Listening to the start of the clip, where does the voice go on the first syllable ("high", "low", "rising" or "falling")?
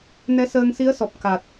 rising